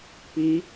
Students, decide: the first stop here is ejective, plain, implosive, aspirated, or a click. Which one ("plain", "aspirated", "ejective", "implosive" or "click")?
plain